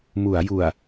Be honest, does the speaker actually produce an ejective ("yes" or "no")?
no